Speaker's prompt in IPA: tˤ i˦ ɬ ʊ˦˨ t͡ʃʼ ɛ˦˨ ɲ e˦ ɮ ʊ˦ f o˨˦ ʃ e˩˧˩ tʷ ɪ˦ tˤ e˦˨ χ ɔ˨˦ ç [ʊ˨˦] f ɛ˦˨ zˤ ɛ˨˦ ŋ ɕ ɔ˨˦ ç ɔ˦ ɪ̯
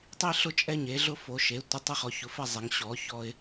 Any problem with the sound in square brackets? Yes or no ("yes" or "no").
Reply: no